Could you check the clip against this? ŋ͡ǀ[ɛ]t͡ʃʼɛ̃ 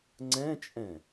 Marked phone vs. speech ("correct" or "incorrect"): incorrect